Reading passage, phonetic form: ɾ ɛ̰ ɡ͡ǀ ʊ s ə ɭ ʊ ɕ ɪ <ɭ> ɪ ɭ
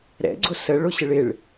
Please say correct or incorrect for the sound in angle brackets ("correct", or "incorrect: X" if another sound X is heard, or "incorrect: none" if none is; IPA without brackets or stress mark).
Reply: correct